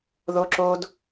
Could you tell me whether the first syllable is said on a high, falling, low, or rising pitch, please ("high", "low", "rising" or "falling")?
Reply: high